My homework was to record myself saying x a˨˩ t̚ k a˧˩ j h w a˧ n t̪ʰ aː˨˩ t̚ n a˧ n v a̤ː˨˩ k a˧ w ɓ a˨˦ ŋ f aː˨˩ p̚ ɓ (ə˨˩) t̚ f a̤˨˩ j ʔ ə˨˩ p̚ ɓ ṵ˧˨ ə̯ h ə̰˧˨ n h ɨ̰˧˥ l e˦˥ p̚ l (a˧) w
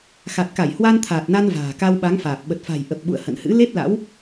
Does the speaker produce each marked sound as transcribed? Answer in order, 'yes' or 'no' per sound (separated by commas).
yes, no